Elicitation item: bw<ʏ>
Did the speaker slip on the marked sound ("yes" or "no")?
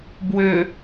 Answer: no